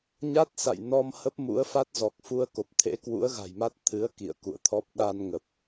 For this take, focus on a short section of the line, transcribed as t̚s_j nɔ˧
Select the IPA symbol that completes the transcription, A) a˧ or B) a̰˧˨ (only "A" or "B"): B